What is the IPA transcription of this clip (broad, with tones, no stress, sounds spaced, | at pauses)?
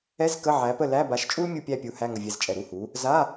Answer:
ɛ˧˥˧ z k ə˧˥˧ ʕ æ˨˥ p ə˥˨ l æ˧˥˧ b a˨˥ ʃ t͡ʃʼ u˥ l mʲ u˥˨ pʲ æ˥˨ pʲ u˨˥ h æ˧˥˧ ŋ ə˧˩ vʲ ɛ˧˩ z t͡ʃʼ ɛ˧˩ ɾ u˥˨ h u˨˥ | z a˧˥˧